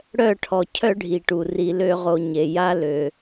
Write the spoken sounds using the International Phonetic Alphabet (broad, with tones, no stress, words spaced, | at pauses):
ɽœ˦˨ʈʰɔ˨ cʰœ˦ɖʱi˨ʈu˨ ri˨lø˧ʁo˨ ɲe˨ja˦ lø˨